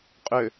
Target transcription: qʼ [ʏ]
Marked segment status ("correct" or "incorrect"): correct